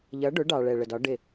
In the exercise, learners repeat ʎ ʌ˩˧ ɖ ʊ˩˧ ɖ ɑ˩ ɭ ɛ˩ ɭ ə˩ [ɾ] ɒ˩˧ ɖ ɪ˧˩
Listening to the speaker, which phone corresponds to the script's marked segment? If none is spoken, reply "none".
d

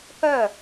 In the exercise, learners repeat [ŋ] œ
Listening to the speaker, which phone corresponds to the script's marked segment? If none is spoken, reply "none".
k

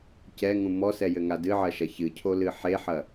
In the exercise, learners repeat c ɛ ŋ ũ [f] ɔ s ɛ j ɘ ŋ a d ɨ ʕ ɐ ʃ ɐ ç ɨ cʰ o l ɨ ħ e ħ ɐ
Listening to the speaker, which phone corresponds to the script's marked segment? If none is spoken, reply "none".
m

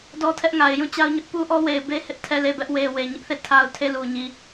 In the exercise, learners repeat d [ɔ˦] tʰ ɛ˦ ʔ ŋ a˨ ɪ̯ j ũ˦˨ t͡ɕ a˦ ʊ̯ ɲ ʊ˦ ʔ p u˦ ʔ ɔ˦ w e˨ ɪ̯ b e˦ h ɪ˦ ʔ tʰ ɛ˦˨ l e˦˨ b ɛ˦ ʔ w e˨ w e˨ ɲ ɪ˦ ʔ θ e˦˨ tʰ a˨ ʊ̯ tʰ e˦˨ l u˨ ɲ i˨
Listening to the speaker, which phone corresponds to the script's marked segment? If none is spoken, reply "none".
ɔ˦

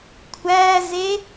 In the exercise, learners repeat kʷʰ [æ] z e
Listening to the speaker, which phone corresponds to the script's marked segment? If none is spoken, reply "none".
æ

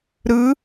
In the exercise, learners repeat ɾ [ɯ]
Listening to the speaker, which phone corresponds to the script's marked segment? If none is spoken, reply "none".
ɯ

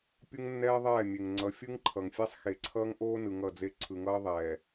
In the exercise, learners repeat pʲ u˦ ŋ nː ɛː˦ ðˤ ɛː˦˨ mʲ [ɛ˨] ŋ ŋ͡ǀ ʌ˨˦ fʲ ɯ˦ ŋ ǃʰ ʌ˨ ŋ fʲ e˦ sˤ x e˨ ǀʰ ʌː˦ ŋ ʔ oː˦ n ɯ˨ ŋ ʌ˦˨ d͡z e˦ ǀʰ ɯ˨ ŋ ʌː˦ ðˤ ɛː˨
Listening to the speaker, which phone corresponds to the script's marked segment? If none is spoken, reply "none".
e˨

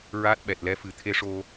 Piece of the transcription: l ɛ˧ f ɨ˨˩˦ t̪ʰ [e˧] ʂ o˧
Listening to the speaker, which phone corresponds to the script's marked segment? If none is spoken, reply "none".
e˧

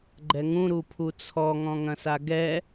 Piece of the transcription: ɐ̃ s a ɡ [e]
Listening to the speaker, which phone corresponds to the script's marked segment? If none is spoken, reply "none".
ɛ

